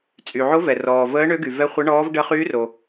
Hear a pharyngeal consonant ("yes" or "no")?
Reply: yes